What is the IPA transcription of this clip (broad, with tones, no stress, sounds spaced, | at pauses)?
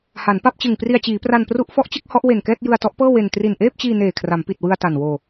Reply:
h a˩˦ n p a˥˩ p̚ t͡ɕ ɯ˨˩ ŋ p r i˧ a̯ t͡ɕ iː˩˦ p r a˧ n p r u˦˥ ʔ f ɔ˦˥ ʔ t͡ɕ ɯ˥˩ k̚ h ɔ˦˥ ʔ w e˨˩ n k ɛː˥˩ t̚ j ɯ˧ a̯ t ɔ˦˥ ʔ p ɤː˥˩ w e˧ n t r i˨˩ n ʔ eː˥˩ p̚ t͡ɕ iː˧ n eː˨˩ kʰ r a˩˦ m p i˨˩ t̚ w ɯ˧ a̯ t a˨˩ n w oː˧